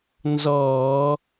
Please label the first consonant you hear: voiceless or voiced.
voiced